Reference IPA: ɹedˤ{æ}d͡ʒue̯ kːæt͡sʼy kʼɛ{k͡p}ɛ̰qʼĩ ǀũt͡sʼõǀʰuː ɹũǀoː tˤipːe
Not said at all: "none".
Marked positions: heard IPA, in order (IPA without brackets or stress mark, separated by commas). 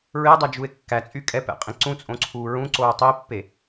ɜ, p